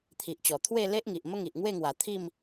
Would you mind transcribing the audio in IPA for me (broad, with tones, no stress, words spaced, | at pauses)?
t̪ʰi˨ʔt͡ɕɔ˨˩ t̪ʰwe˥˧ le˦ʔŋi˨ʔ mə˦ŋi˨ʔŋwe˥˧ŋwa˨˩ t̪ʰi˥˧m